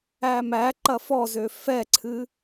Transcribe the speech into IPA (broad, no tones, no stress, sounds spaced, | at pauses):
æ m æ ǃ ɐ f ɔ z ø f ɛ ǀʰ ɨ